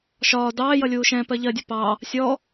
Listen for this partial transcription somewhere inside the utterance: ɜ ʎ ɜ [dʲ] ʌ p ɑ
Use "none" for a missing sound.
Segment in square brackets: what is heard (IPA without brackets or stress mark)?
dʲ